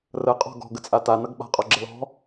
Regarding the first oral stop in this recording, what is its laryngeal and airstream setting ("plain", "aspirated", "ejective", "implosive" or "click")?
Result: ejective